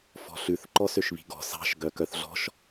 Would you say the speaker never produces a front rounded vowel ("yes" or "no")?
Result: no